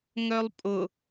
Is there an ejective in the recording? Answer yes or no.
yes